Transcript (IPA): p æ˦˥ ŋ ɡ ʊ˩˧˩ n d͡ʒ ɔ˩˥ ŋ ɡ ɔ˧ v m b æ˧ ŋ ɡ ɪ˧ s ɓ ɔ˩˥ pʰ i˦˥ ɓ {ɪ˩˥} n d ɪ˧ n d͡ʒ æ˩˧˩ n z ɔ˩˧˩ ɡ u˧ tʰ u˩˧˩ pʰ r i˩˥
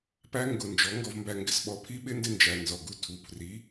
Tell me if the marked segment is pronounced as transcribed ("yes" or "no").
no